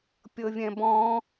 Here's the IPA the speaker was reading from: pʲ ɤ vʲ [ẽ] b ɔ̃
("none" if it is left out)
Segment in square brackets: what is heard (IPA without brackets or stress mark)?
ɛ̃